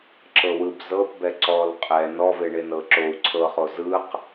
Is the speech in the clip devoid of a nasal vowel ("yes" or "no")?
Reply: yes